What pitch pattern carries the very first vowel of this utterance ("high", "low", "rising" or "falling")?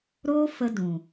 high